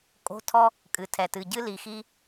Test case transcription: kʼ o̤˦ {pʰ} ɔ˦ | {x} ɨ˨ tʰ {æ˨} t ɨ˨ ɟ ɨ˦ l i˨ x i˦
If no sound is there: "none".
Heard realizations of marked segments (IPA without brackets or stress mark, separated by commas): tʰ, kʼ, ɛ˨